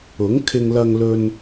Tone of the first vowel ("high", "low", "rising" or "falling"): rising